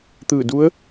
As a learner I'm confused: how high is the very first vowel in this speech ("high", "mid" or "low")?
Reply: high